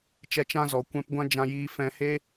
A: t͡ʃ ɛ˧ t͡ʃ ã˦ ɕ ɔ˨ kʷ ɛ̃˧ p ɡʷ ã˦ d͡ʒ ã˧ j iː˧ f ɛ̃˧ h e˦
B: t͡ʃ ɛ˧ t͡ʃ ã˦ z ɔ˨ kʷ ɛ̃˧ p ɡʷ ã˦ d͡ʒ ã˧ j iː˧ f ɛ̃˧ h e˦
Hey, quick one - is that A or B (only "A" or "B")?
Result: B